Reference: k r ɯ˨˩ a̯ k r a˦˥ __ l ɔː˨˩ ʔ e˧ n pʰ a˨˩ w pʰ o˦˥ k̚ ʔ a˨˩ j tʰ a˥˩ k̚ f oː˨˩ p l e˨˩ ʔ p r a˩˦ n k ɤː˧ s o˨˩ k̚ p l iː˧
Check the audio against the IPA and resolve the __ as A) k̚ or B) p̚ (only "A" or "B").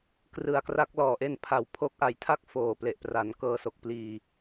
A